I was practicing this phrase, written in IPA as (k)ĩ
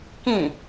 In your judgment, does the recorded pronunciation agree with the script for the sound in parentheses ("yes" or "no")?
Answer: yes